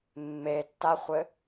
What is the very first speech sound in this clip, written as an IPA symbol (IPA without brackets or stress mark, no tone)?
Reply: mː